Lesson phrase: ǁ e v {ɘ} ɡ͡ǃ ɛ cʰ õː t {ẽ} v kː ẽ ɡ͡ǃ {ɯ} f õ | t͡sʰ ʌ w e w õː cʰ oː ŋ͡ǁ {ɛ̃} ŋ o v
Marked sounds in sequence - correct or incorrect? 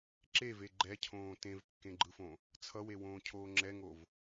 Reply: incorrect: e, correct, correct, incorrect: ɛ

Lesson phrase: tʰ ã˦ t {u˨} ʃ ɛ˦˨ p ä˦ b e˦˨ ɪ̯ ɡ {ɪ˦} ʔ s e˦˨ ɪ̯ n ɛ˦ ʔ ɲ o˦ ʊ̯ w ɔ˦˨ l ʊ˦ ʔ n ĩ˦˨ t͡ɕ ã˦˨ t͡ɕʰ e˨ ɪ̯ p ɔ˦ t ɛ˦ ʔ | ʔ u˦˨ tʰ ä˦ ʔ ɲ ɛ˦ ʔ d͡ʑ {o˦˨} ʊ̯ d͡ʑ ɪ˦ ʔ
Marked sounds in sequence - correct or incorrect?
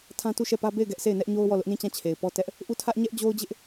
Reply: incorrect: u˦˨, incorrect: ɛ˦, incorrect: o˦

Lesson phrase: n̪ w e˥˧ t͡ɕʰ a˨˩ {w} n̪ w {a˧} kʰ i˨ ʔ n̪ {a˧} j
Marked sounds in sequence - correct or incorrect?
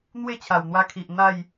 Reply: correct, correct, incorrect: a˥˧

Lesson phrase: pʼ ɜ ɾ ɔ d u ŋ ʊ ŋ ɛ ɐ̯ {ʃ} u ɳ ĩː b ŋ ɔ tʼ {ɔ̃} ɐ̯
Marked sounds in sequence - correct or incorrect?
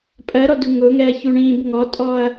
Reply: incorrect: ç, incorrect: ɔ

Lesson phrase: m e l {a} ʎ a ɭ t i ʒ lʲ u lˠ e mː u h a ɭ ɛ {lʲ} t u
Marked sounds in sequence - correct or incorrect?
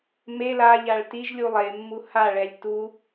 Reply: correct, correct

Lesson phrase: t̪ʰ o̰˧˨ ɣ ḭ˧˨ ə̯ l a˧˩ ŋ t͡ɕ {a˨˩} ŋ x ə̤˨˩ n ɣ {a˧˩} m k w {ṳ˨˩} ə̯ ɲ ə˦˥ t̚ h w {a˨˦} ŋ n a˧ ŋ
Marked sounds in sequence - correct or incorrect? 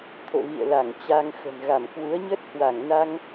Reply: incorrect: a˧, correct, incorrect: u˨˦, incorrect: a˧˩

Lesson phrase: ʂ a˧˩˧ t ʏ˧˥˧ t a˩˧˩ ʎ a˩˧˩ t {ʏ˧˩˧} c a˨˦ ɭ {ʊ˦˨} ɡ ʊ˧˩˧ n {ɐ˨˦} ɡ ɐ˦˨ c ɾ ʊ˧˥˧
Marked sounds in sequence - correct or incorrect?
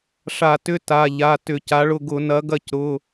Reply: correct, correct, correct

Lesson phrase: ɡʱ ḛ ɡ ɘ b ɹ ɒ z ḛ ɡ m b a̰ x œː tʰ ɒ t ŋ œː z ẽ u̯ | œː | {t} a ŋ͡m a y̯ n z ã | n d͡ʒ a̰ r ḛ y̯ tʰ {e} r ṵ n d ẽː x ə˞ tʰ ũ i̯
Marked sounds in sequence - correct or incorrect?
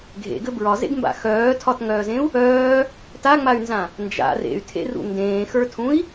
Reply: correct, incorrect: ḛ

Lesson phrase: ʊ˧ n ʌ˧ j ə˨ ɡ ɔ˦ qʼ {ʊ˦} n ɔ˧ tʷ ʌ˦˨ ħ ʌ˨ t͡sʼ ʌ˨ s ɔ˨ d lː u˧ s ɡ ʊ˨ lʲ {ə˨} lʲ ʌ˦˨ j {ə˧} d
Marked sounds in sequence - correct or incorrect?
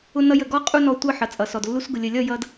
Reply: incorrect: u˦, correct, incorrect: ʌ˧

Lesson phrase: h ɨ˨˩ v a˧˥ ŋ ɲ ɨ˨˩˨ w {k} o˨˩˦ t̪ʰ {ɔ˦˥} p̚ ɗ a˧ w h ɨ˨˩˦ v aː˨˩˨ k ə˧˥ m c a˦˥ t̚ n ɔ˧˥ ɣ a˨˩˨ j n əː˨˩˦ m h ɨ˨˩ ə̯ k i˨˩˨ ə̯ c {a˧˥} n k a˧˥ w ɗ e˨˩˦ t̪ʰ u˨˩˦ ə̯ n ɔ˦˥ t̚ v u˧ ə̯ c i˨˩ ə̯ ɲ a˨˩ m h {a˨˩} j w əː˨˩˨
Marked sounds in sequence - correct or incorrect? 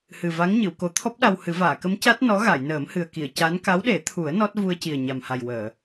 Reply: correct, correct, correct, correct

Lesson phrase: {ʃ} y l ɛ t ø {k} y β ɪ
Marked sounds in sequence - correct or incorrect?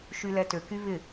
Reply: correct, correct

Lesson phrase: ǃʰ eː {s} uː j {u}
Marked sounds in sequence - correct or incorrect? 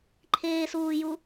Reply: correct, correct

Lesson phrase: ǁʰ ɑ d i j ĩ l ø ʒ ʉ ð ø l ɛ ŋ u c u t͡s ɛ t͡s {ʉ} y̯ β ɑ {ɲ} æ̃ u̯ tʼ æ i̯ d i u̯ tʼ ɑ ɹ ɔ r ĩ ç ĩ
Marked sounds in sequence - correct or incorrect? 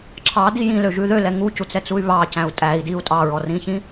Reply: incorrect: u, incorrect: c

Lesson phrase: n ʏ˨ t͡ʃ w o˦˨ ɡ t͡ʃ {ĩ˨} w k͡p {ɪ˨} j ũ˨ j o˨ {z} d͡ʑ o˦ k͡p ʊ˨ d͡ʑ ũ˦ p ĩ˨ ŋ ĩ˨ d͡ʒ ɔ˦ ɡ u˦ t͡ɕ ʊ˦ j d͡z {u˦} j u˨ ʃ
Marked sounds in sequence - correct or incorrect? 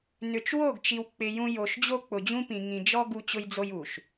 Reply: incorrect: i˨, correct, incorrect: ʃ, incorrect: o˦

